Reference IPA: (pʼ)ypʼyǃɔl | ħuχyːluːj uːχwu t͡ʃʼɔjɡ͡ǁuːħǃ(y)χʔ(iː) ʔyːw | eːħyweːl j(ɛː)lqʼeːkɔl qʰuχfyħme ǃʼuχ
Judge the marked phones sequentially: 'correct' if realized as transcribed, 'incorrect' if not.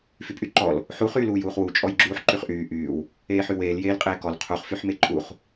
incorrect: f, correct, incorrect: yː, incorrect: eː

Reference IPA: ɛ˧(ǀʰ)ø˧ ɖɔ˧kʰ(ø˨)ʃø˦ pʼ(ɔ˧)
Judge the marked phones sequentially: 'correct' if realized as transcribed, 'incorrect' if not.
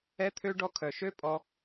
incorrect: t̪ʰ, incorrect: œ˨, correct

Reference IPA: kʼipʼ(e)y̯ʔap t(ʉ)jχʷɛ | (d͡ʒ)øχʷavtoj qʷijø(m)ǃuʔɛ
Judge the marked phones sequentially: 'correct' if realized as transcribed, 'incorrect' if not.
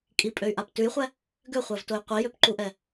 incorrect: ø, correct, incorrect: ɡ, incorrect: p

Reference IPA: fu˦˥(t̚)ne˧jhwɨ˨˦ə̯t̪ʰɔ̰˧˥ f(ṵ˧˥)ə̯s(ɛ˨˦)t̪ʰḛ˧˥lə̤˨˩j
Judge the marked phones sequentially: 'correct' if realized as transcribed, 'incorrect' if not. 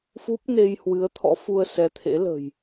incorrect: p̚, incorrect: u˧, correct

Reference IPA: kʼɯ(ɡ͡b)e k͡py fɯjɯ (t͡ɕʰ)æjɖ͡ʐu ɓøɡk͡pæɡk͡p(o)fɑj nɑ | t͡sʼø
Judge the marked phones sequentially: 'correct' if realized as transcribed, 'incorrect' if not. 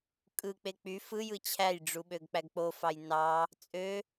incorrect: k͡p, correct, correct

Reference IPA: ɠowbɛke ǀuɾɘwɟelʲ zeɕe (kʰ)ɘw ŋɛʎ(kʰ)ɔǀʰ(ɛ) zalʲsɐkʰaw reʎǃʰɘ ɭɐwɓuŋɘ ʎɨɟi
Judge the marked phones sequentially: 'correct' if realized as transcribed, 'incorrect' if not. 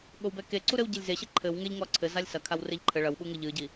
incorrect: ǃʰ, incorrect: ŋ, incorrect: ɘ

